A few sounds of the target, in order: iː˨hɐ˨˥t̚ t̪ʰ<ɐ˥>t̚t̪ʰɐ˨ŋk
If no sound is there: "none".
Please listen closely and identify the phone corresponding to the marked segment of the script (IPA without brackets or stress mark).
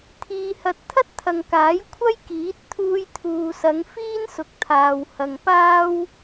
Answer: ɐ˥